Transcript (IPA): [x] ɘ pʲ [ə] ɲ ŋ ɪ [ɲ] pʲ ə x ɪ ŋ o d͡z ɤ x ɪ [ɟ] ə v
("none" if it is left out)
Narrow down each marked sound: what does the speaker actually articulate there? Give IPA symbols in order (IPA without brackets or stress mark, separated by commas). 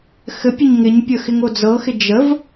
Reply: x, ə, ɲ, d͡ʒ